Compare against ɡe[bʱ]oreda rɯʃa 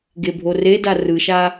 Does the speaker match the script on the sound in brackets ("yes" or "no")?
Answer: yes